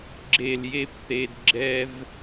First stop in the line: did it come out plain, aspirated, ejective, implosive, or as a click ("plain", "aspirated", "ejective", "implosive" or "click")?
click